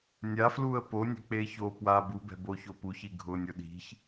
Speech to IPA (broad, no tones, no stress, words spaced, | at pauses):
nʲafluə̯ ponʲe̤k͡pe ço pwa bubɛ̤boço puçi ɡʱʊnʲʊ ɗi̤ç